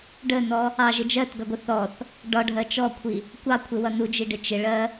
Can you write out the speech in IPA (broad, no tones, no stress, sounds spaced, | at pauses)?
ɖ ə n ɔ | ɑ ʒ ɪ d͡ʒ ɜ t ɡ ʌ ɡʷ ɪ θ ɔ θ | ɖ ɒ ɖʱ ɜ t͡ʃ ɔ kʷʰ i | kʷ ɑ kʷʰ ɪ w ʌ n u d͡ʒ i ɖ ɪ t͡ʃ ɪ ɭ ɜ